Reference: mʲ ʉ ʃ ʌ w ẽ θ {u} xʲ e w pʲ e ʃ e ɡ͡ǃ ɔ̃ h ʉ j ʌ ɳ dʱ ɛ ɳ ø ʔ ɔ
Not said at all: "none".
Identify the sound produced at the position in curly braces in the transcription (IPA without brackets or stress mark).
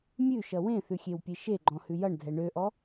ʉ